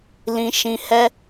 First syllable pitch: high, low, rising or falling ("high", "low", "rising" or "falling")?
low